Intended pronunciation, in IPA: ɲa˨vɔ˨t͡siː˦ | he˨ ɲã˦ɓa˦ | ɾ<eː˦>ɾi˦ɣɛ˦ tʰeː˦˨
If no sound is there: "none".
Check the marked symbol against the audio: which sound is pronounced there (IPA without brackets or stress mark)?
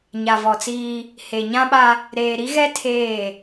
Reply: eː˨